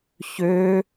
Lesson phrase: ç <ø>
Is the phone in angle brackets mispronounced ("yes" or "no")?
no